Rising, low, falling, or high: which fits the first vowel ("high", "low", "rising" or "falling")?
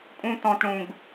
high